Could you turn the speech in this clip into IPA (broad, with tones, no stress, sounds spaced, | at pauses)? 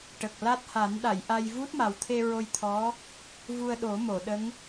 ʈ ə˨˩ k̚ l a˦˥ t̚ h a˨˩˦ n ɗ a˨˩˨ j ʔ a˧ j v u˦˥ t̚ m a˨˩ w t̪ʰ e˧ ɹ o˧ j t̪ʰ ɔ˧˥ | v u˧ ə̯ ɗ o˨˩˦ m o˨˩˨ ɗ ə˧˥ ŋ